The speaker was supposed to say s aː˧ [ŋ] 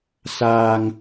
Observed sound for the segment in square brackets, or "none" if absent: ŋ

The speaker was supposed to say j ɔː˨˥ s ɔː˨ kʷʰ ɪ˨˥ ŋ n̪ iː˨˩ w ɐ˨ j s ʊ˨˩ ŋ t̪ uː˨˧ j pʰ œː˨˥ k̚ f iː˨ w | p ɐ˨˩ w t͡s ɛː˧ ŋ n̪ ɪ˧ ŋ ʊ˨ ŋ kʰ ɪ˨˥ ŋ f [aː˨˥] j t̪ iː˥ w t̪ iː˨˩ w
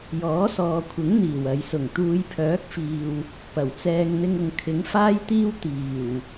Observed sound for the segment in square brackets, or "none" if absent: aː˥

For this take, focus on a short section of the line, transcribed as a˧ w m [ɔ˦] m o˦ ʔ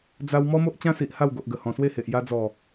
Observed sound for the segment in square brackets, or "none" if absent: ɔ˦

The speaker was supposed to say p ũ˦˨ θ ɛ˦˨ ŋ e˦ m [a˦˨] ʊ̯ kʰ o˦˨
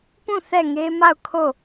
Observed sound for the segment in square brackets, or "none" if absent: a˦˨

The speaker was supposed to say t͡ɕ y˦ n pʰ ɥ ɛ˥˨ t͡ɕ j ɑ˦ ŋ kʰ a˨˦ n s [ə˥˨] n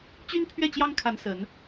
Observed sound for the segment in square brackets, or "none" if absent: ə˨˦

